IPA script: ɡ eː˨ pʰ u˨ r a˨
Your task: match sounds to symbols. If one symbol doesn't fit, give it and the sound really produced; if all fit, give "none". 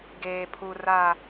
none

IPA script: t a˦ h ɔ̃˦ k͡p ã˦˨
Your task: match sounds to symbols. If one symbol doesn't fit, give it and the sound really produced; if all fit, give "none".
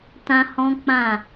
a˦ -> ã˦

